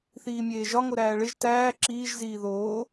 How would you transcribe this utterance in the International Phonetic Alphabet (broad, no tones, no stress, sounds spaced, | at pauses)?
θ iː mʲ eː ʒ ɒ ŋ o ɾ æː ɭ e ʒ t æː ǁ iː ʒ z iː ð oː